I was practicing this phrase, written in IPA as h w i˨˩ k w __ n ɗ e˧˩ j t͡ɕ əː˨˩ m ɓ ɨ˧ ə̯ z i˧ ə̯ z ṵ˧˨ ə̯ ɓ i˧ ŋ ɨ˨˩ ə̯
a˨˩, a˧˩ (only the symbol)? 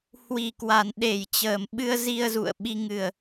a˨˩